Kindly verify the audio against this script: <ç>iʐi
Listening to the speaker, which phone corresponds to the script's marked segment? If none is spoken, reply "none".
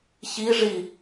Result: ç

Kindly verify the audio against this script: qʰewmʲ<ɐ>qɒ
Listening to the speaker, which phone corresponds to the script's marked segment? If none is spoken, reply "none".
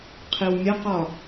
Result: ɐ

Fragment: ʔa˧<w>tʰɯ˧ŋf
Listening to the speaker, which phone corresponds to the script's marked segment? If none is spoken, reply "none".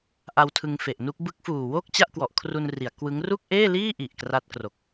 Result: w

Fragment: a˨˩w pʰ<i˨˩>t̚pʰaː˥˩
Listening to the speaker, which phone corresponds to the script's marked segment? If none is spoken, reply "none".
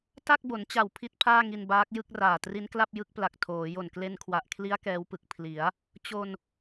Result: i˥˩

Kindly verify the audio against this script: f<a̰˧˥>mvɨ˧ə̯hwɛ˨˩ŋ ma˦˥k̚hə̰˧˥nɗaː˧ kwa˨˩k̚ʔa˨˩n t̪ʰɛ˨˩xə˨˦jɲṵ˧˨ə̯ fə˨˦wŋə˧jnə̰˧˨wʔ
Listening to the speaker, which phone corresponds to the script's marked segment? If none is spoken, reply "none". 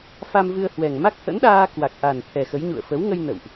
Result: a˧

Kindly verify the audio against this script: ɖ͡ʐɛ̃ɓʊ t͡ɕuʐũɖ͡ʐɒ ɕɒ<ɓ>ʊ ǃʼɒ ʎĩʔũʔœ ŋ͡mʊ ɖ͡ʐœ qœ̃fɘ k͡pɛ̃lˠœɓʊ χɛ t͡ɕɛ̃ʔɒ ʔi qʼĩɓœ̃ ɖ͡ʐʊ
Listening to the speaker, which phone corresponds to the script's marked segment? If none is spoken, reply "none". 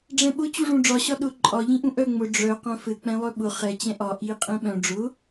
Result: ɗ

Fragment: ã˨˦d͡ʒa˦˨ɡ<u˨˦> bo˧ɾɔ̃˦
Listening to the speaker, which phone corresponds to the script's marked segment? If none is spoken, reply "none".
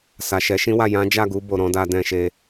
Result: u˨˦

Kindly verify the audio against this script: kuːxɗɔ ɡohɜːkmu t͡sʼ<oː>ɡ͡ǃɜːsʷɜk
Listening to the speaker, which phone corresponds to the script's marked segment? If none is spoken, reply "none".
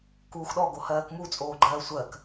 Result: oː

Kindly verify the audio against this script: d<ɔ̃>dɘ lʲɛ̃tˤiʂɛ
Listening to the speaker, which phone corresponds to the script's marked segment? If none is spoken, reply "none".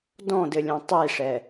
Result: ɔ̃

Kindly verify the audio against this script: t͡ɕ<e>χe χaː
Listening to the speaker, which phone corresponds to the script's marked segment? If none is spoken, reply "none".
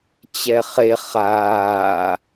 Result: ɛ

